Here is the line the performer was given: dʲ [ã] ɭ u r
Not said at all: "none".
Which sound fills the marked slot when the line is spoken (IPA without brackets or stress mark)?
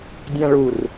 ã